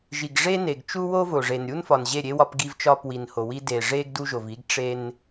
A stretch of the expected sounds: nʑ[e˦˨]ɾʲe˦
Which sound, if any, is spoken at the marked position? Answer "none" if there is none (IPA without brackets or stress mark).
e˦˨